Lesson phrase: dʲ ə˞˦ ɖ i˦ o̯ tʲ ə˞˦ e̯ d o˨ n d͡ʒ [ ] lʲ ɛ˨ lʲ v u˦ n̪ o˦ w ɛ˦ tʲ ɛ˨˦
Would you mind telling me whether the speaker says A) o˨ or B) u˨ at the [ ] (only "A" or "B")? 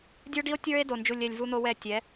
B